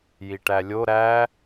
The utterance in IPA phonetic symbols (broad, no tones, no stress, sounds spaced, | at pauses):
j i ʈ æ lʲ o ɾ æ